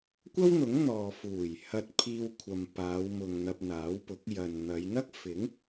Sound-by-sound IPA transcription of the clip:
kʷɐ˥wn̪ʊ˨˥ŋ n̪ɔː˨ fuː˨˩jhɐ˧t̚ pʰiː˧wkʷʰɐ˨m paː˨˧wmʊ˨ŋ n̪ɐ˧p̚n̪aː˨˥wpʊ˨˥k̚ jɐ˨nn̪ɐ˨˧j n̪ɐ˥k̚fɪ˨˥ŋ

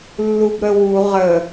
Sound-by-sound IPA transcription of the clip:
lːubɾəwu ʁə

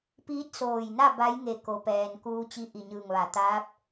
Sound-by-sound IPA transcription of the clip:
piː˧˥t̚soː˧˩jna˥˨ ba˧˥jŋe˧˩ ko˩˧pɛː˩n kuː˧t͡ɕi˧ ʔi˧˩ɲɯː˧˩ŋʋa˩˧ t̪aː˧˥p̚

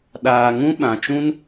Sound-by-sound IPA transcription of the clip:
ɗaː˨ ŋũ˦ɓã˨t͡ʃũ˦n

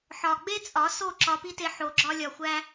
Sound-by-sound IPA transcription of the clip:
ħɒ˨ɡ͡be˦t͡sʼɒ˨˦ so˦˨ǁɒ˧pi˦te˧ ħo˨ɡ͡ǁɒ˧lʲɒ˨xʷæ˧

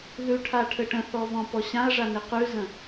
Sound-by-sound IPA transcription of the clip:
ðʉʈʰa ʈʰɘʈə̃θɔ vɔ̃pɔɕãɐ̯ʐa neqʉzə̃

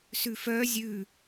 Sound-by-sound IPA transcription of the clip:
sʉfœː zʲʉː

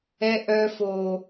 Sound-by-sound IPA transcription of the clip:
ɛ˦ ʔœ˦fo˨

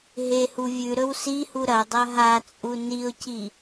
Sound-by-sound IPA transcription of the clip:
ɦehu vʲʉɾɵw sihu ɾɐdˤɐ ɦat͡sʼu niʊ̯ci

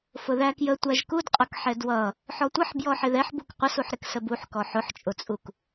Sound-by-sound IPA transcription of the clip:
fʊðækjə tʷæʒkudqʼʌkħɛ dwʌ | ħɔtʷʌħ bjɔħɪðɛħbuk qʷʌsuħɾɪk səbuħkɔ ħʊħt͡ʃʼʊt͡sʼuk

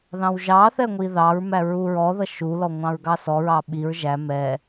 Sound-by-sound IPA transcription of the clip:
ðɑ̃wʒɑθɛ ŋʷiðɑɹmæ ɹuɹɔðʌ ʃulɔ ŋʷɑ̃ɹɡɑsɔɹɑ ɓiɹ ʒæ mɛ

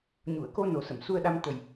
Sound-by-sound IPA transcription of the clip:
ɲu˨˩˨ə̯ko˧no˨˩ sə˨˩˨msu˧ə̯ɗa˧m t̪ə˨˩j

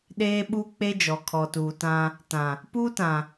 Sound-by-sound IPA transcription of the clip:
ɗeː˦ɓu˦ k͡pe˦d͡ʒɔ˨ kʰɔ˨tuː˨tã˦ | tã˨ | puː˦tã˨

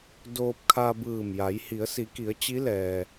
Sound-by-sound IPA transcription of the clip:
doː˧p̚ kʰa˧bɯː˧˩mja˩˧j hi˩˧ə̯si˩˧ki˩˧ə̯ t͡ɕi˧˥lɛː˩

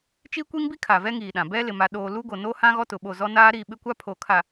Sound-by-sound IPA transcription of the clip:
t͡ʃi˦kʷi˦ŋbi˦ kʰa˨vɛ˦ŋiː˨ɗã˨ bɛ˦lɪ˨ ma˨ɗoː˨ lu˦ɡo˨ no˦ hã˦ɣɔ˦ tʊ˨ɓo˦˨ zɔ˦naː˦ ɾi˦˨ɓɪ˦kʷa˦ pʰo˨kʰa˨

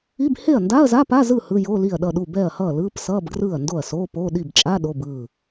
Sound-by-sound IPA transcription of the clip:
i˧˥˧b he˥˩ɐ̯nda˧˥˧ɐ̯zaː˧˥˧p a˧˥˧zɯ˥˩ hɯ˧˥˧jo˧˥˧li˥˩ɐ̯ ɗʌ˥˩ɗu˥˩ bɛ˥˩ɐ̯hʌː˥˩lɯː˧˥˧psʌː˧˥˧b ɡrɯː˥˩ɐ̯ndo˥˩ɐ̯soː˧˥˧ poː˧˥˧ ɗi˥˩bt͡ʃʼa˧˥˧ ɗo˧˥˧bɯː˥˩

